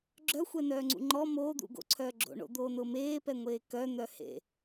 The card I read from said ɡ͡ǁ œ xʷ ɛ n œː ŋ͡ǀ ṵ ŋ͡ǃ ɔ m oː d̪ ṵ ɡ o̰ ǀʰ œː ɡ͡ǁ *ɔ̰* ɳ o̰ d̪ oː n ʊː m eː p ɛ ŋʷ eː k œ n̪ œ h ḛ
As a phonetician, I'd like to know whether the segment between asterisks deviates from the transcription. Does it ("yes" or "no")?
yes